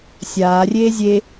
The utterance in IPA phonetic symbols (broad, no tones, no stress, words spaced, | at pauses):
sʲaː rʲeːzʲe